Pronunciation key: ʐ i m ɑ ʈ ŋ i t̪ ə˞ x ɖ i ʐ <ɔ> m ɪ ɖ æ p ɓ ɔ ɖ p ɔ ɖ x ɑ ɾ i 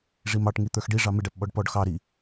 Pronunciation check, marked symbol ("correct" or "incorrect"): incorrect